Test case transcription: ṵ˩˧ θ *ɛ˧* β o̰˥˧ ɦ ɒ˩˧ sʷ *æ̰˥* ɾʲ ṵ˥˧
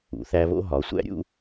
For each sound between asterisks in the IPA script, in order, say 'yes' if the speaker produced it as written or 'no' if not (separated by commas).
no, yes